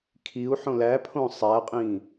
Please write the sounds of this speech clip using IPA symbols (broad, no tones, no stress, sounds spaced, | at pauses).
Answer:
kʰ i u̯ ħ õ l æ pʰ õ sˤ æ qʼ ĩ